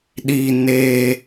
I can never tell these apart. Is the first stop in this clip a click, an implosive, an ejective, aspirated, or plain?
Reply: implosive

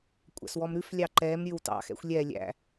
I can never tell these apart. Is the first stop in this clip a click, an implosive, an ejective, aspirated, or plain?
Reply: ejective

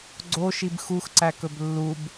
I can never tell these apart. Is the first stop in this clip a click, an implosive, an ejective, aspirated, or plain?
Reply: click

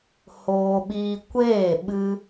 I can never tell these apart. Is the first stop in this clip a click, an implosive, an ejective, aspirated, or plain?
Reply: implosive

